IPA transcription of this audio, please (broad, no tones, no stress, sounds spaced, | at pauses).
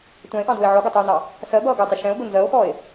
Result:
tʷ æ̃ e̯ ʔ ɑ̃ d ʊː e̯ ʕ ɔ ɡ ʌ tˤ uː n ɑ | s ɜ b ʌː ɡ ʊ e̯ tˤ ə ʃ ɛ̃ o̯ ɡ ʊ n z ɜ o̯ x ɔ e̯